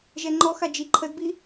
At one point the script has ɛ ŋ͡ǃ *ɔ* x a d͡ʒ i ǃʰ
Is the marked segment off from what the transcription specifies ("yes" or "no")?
no